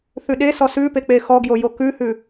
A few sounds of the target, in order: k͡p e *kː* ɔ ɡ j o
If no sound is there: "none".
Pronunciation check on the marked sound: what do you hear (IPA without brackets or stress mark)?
x